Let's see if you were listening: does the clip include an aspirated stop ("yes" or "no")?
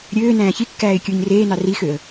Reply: no